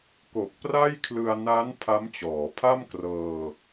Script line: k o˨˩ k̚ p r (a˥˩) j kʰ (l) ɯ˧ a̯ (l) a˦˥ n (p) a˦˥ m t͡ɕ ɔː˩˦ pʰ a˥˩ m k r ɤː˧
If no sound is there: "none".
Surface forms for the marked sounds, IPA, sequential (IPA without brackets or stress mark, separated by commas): a˥˩, l, n, pʰ